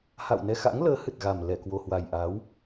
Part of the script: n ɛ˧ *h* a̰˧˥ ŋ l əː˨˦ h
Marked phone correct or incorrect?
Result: incorrect: x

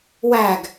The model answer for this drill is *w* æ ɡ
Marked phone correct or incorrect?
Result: correct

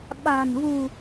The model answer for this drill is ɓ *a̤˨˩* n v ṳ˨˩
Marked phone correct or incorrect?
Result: correct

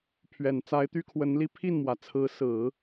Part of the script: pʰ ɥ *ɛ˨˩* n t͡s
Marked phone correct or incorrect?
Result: correct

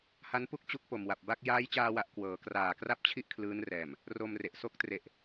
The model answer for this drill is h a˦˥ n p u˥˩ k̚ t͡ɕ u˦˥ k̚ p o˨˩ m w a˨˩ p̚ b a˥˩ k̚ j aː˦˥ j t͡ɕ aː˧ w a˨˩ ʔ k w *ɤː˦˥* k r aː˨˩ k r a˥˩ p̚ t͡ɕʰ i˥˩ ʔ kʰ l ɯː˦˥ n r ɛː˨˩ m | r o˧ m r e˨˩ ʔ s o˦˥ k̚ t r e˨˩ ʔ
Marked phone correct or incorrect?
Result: incorrect: ɤː˩˦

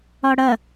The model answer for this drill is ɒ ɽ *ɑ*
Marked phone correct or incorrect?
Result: incorrect: ɐ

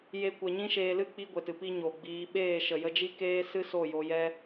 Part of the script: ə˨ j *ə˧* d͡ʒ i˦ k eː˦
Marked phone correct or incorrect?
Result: correct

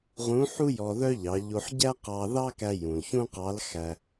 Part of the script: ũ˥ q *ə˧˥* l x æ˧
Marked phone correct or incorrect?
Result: incorrect: ɑ˧˥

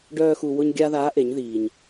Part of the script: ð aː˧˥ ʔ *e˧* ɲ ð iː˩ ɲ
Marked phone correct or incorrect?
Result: incorrect: e˩˧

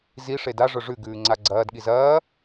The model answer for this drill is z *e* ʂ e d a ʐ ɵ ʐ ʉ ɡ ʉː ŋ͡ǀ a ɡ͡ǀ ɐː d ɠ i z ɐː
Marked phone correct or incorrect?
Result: incorrect: i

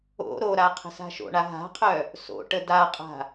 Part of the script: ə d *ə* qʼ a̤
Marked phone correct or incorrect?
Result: incorrect: a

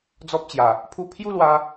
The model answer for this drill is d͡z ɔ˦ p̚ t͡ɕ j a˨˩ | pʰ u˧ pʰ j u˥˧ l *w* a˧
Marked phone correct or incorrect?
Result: correct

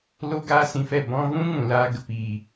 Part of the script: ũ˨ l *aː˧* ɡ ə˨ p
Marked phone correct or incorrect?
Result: incorrect: aː˦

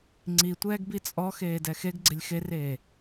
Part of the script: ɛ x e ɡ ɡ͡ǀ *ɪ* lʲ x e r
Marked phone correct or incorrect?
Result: correct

